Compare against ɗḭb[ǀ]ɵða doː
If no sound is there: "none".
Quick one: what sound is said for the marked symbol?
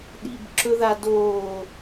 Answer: ǁ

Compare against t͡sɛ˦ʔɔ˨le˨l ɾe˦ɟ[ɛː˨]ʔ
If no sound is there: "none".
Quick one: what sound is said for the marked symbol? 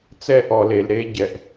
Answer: ɛ˨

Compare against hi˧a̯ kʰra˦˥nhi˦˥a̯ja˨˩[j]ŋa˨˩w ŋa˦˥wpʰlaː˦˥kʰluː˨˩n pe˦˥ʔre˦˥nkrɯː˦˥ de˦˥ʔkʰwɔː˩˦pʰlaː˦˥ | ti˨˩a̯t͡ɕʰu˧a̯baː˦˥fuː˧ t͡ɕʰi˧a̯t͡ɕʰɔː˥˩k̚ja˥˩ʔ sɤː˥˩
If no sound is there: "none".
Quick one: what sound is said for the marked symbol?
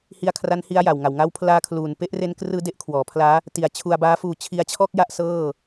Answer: w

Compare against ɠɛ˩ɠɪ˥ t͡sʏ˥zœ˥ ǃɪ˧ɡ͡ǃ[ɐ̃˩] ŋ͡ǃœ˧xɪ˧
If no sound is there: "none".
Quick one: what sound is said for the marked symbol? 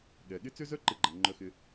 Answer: ɐ˩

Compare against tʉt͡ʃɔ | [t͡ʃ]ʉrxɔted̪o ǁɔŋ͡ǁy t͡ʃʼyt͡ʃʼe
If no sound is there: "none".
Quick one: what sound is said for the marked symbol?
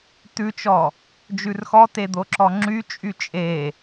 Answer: d͡ʒ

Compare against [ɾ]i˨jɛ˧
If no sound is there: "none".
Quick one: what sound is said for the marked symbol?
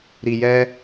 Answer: ɾ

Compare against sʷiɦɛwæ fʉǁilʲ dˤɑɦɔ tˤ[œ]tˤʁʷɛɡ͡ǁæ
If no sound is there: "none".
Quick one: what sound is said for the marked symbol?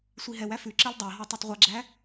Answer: œ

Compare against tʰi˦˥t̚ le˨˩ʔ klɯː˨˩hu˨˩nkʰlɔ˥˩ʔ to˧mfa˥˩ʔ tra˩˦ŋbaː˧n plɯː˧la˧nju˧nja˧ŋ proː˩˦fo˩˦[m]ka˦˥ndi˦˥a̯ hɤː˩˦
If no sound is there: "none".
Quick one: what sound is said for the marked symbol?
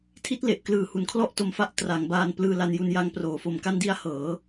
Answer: m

